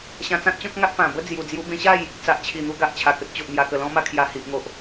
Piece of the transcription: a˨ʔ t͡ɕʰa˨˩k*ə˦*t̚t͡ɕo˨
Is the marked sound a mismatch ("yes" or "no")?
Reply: yes